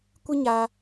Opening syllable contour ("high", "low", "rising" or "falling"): high